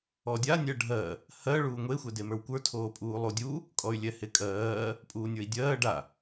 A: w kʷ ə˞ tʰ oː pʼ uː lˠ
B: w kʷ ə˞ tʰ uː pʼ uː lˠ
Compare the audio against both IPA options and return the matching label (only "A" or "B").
A